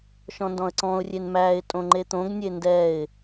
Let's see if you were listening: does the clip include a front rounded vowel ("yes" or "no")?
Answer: no